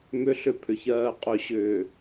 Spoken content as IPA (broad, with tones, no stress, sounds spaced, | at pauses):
m ʏ˨ ɬ ʏ˨ pʰ ʏ˨ ç ɜː˨ qʼ ɵ˨ ɕ ʏː˨